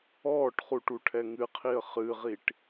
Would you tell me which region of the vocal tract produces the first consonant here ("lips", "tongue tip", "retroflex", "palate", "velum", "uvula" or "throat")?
retroflex